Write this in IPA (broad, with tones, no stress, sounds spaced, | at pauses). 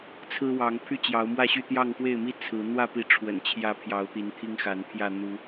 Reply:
t͡sʰ ɹ̩˦ w ɑ˨˦ ŋ pʰ y˥˨ t͡ɕ j ɑ˨˦ ʊ̯ m w ä˥˨ ɕ y˥˨ t̪ j ɑ˥˨ ŋ x w e˥˨ ɪ̯ m i˦ t͡sʰ ɹ̩˨˦ n̪ w ä˥˨ p i˨˦ ʈ͡ʂʰ w ə̰˨˩ n t͡ɕʰ j ä˨˦ pʰ j ɑ˨˦ ʊ̯ t̪ i˨˦ n t̪ʰ i˦ ŋ x a˨˦ n pʰ j ä˥˨ n̪ u˨˦